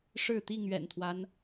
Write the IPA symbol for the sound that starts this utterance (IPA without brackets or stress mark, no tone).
ʂ